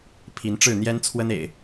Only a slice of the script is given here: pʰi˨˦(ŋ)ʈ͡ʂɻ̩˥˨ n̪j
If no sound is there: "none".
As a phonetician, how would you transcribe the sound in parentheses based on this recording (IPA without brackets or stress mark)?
n